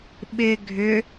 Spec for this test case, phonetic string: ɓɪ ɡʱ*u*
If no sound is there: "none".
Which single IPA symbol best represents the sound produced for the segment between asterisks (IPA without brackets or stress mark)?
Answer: ʏ